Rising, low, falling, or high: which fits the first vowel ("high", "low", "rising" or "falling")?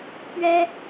high